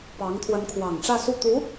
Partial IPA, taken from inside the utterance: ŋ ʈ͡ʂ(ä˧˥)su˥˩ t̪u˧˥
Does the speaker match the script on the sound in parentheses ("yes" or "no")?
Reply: no